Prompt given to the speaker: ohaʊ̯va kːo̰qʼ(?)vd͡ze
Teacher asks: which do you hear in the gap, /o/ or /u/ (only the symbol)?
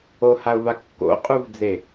u